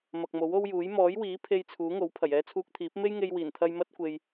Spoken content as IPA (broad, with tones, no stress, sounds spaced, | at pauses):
m ɐ˨ k̚ m o˨˥ w o˥ w j uː˨˥ j m ɔː˨˥ j w iː˨˥ pʰ e˧ j t͡sʰ uː˨˥ ŋ o˨˥ w pʰ ɐ˨˩ j ɛː˧ t͡sʰ uː˧ k̚ t̪ʰ iː˨˥ p̚ m e˥ j ŋ e˧ j w iː˨˩ n t̪ʰ ɐ˧ j m ɐ˥ t̚ kʷ e˧ j